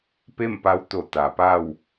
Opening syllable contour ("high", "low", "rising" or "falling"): falling